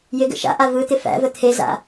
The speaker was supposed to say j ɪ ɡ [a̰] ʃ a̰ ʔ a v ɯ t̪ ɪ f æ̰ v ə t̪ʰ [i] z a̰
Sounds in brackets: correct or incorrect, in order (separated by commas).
incorrect, incorrect